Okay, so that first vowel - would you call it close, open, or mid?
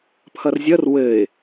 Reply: mid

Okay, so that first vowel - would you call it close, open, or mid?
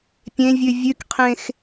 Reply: mid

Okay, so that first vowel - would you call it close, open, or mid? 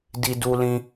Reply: close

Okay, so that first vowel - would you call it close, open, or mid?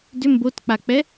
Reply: close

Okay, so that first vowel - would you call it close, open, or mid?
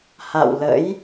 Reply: open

